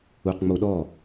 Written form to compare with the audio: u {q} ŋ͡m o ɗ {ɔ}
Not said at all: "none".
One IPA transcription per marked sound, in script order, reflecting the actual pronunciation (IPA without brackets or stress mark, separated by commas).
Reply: q, ɔ